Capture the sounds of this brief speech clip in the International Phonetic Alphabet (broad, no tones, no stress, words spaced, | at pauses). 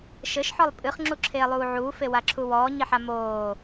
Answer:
ʃɘʃħɔlˠ pʼɨχŋ͡ǁuǁʰeːlˠuː ʕuːfewaǁʰu wɔːɲiħa moː